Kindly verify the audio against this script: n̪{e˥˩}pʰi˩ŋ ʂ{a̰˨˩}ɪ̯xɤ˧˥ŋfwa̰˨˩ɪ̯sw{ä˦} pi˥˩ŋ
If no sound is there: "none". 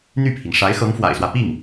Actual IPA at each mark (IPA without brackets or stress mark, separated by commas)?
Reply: y˥˩, a˧˥, ä˦